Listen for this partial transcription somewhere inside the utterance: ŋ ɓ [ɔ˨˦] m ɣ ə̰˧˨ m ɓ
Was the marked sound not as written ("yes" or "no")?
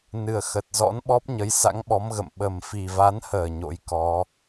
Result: no